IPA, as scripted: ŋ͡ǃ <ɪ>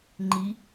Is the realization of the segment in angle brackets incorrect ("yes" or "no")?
yes